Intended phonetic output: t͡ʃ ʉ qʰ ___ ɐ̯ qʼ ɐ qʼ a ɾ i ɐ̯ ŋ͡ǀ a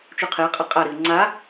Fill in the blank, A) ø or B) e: B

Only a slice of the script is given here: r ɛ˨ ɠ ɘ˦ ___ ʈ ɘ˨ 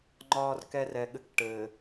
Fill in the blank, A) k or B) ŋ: A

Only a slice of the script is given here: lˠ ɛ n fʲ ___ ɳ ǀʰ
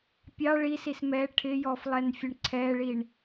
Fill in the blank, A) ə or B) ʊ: A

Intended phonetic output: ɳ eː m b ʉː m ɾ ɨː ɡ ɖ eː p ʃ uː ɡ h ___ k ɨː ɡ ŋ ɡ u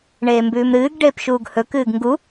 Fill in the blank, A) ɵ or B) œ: A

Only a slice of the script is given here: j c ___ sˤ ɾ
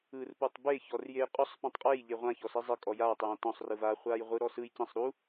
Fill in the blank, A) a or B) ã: B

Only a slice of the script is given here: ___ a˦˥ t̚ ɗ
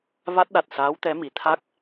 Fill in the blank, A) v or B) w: A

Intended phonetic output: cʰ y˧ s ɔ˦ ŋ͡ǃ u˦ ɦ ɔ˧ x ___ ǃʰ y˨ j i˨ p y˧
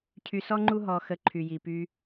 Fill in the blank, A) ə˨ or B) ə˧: B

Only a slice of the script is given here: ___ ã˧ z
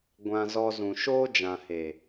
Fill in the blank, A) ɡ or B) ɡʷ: B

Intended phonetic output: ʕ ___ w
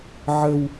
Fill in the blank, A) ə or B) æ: A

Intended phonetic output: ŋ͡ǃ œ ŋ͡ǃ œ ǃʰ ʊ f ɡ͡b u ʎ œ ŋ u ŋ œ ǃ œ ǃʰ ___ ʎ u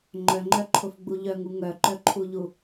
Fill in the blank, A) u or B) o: A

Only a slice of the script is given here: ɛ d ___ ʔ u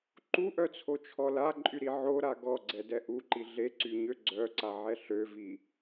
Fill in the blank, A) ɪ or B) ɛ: B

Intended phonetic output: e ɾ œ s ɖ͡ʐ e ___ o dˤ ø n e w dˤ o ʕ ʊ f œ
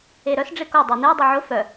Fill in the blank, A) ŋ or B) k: B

